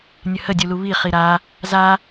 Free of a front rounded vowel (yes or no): yes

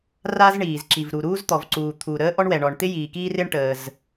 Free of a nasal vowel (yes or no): yes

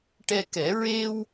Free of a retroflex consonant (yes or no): no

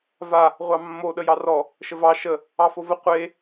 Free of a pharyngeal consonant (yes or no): yes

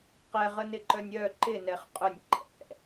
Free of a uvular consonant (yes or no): no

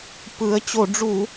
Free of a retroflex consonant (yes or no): no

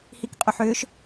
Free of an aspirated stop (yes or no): yes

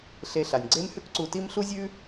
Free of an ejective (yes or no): yes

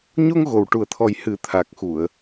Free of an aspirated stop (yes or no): no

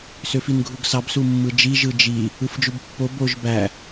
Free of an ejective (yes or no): yes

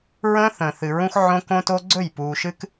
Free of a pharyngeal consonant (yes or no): no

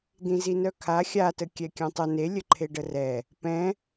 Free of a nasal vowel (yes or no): no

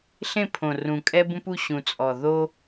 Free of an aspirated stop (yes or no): no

